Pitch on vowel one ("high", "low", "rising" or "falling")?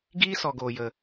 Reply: high